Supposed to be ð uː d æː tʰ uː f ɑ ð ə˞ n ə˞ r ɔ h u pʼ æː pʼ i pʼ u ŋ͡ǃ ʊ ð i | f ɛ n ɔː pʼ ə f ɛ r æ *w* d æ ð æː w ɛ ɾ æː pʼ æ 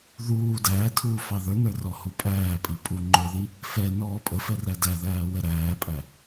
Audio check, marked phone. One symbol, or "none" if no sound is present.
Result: none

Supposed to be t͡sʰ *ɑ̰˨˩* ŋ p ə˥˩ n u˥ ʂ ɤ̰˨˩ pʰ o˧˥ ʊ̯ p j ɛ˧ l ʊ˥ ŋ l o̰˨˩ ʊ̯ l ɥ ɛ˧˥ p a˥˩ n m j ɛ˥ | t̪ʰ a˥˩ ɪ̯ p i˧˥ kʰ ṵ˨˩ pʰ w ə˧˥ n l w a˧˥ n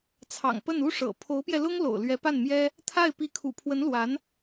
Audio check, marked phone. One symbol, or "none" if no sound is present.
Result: ɑ̰˨˩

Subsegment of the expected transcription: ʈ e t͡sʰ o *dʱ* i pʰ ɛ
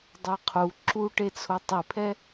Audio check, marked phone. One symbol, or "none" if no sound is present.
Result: tˤ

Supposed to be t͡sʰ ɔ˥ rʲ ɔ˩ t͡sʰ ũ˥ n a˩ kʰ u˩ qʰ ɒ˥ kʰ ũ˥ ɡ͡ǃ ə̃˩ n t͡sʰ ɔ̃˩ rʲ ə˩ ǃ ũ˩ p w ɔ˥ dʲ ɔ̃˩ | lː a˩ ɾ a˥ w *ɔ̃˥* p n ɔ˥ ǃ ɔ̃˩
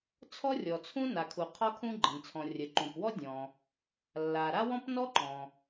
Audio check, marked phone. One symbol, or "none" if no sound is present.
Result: ɔ̃˥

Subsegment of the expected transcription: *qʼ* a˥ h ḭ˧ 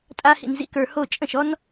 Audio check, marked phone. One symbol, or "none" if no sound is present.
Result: tʼ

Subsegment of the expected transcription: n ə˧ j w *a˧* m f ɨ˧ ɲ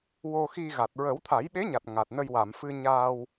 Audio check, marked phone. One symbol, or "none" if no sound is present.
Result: a˨˩˨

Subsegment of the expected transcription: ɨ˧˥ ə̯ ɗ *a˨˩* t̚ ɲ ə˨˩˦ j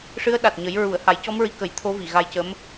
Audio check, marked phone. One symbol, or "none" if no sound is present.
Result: a˨˩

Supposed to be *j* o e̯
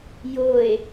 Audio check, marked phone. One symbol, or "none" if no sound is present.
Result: j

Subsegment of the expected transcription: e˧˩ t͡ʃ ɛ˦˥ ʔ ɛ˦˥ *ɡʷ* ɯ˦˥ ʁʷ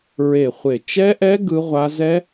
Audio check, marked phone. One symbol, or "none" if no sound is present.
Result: ɡ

